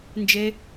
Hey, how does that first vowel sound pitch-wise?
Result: high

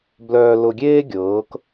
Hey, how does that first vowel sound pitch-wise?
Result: low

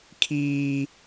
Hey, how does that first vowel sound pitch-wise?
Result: high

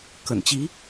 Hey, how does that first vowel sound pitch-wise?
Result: low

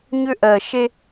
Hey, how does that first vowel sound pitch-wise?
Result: high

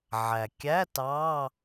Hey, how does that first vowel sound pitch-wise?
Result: low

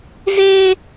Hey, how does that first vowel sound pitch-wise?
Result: high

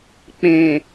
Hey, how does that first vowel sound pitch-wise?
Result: low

